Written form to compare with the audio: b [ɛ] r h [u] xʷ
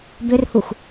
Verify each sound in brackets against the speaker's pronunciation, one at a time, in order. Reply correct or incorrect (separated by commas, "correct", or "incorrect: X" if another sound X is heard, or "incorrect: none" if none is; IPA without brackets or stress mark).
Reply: incorrect: ʏ, correct